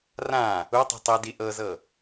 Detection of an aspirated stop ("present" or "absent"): absent